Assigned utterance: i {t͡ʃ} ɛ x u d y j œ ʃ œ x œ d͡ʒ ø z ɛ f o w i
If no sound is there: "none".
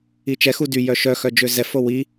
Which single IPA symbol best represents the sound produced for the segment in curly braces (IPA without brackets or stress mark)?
t͡ʃ